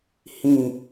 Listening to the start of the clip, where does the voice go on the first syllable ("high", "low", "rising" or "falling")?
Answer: low